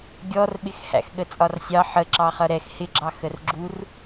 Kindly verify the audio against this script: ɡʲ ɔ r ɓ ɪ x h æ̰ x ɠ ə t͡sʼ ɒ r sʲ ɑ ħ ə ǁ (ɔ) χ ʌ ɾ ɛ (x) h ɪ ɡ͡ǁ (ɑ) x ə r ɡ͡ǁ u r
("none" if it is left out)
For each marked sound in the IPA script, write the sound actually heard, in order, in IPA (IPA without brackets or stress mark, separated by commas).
ɑ, x, ɑ